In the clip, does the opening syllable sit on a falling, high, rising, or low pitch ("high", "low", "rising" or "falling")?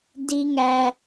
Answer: high